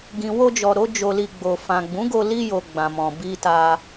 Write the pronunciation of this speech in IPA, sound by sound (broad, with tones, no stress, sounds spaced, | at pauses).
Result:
ɡ ĩ˨ w o˧ d͡ʒ ɔ˨ ɾ o˨˦ d͡ʒ o˧ l i˧ ɡ͡b o˨ f ã˨ ɡ͡b ũ˨˦ ɡ o˧ l i˧ j o˨ ɡ͡b ã˨ m ɔ̃˨ b i˧ t a˧